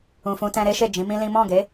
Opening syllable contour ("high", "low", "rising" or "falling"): low